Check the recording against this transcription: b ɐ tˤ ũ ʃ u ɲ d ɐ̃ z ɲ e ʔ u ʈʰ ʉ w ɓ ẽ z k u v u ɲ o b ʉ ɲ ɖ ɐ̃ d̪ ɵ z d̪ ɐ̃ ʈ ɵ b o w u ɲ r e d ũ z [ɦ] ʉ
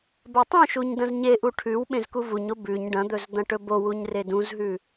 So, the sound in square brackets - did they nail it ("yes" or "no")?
yes